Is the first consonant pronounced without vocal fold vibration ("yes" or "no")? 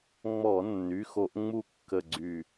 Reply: no